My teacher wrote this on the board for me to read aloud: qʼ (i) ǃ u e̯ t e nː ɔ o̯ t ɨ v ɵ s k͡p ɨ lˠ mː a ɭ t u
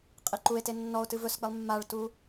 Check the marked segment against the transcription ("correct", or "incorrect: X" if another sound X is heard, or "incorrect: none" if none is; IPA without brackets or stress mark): correct